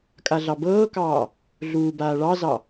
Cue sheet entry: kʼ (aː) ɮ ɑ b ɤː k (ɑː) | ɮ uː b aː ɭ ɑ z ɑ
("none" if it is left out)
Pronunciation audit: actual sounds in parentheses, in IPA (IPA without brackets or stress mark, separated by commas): a, ɑː